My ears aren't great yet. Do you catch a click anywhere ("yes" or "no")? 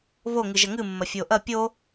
no